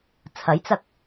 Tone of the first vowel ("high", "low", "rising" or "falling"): rising